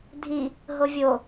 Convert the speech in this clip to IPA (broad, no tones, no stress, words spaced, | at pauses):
dʱi | ɦovʲo